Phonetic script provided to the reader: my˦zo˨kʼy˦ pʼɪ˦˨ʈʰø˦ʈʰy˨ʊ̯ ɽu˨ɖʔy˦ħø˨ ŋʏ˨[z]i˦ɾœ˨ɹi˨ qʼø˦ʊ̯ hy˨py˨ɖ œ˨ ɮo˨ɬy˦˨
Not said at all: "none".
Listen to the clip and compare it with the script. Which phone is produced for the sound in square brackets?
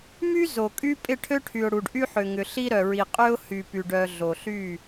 ɬ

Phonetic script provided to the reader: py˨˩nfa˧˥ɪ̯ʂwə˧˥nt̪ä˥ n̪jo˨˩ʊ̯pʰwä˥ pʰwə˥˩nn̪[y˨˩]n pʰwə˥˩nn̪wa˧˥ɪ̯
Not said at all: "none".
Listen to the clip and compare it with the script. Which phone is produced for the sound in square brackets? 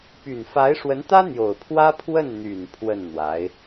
y˨˩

